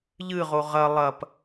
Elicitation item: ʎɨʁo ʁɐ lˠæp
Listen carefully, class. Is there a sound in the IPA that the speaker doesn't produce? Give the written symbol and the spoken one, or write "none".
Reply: æ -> ɐ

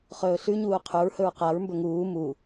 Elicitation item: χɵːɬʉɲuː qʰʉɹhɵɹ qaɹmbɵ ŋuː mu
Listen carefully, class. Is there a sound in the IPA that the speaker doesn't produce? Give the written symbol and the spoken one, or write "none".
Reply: none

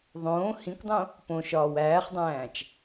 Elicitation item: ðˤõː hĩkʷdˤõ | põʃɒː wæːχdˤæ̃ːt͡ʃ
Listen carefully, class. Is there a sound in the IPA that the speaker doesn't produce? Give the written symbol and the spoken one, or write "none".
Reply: none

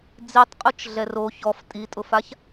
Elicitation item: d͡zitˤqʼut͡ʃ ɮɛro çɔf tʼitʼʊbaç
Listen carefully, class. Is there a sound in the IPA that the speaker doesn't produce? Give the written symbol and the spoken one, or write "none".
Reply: b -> f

